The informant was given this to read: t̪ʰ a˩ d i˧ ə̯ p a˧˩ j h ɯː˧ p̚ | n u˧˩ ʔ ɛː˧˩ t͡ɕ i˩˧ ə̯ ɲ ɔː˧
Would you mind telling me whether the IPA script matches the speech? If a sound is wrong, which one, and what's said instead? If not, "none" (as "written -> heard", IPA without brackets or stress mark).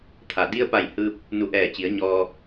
none